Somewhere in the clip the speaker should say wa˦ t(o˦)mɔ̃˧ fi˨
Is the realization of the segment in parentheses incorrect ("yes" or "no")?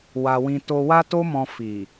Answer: no